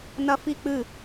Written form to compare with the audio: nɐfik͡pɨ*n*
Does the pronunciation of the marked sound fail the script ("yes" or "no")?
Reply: yes